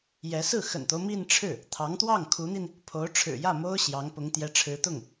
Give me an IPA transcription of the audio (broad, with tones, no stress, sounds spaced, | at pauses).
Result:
j ɛ˧˥ s ɹ̩˥˩ x ə̰˨˩ n t̪ o˦ ʊ̯ m i˥˧ n ʈ͡ʂʰ ɻ̩˥˩ | t̪ʰ ɑ˧˥ ŋ t̪ w ɑ˥˩ ŋ kʰ u˧˥ n̪ i˧ n | pʰ o˧˥ ʊ̯ ʈ͡ʂʰ ɻ̩˨˩ j ä˥˩ m o˥ ʊ̯ ɕ j ɑ˧˥ ŋ p ʊ˧˥ ŋ t̪ j ɛ˧˥ ʈ͡ʂʰ ɻ̩˧˥ t̪ ʊ˥˩ ŋ